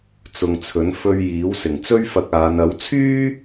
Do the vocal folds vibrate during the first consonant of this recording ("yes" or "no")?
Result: no